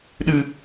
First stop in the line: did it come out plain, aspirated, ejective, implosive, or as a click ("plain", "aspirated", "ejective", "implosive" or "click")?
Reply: implosive